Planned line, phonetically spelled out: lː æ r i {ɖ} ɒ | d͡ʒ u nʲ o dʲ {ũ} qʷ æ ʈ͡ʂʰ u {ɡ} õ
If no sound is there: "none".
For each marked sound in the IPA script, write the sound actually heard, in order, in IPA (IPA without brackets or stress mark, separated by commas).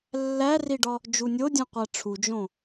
ɖ, õ, d͡ʒ